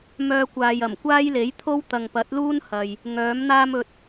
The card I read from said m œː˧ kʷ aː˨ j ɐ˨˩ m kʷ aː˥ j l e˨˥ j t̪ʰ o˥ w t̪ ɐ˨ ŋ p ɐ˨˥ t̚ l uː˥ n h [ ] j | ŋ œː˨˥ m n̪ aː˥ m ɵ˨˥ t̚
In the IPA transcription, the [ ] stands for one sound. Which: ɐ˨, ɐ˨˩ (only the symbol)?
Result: ɐ˨